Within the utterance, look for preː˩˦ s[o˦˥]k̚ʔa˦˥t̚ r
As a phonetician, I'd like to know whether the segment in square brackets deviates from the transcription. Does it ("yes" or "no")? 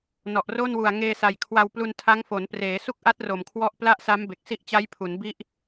yes